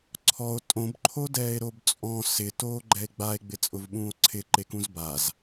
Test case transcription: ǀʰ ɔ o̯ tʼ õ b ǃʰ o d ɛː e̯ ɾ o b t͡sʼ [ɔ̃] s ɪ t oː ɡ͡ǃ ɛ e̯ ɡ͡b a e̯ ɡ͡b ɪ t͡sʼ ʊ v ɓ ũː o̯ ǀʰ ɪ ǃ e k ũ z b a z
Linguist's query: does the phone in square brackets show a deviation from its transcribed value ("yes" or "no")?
no